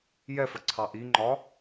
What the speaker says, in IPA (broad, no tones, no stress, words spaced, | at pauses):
jɛfəǀʰɑ ʔiŋ͡ǃɒ